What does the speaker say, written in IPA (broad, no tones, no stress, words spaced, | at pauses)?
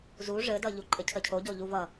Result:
zu ʐɘdʌʎu ǃʼɘcʰəcʰoɟo ʎuvʌ